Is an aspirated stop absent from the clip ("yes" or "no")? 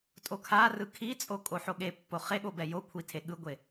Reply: no